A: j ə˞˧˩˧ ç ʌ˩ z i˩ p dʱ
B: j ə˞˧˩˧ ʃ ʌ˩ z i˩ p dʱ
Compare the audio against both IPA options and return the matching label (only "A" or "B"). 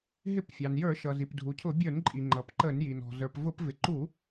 B